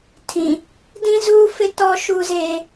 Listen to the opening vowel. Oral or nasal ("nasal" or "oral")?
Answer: nasal